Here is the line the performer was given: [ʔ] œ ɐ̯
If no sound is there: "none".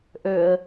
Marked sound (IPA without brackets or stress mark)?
ʔ